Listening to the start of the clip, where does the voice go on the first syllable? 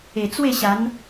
low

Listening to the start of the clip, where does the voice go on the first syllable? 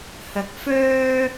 rising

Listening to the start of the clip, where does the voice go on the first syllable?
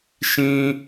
high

